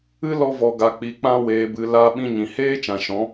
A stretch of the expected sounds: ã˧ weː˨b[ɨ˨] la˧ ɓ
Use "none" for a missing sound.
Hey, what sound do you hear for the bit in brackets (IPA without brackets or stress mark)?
ɨ˨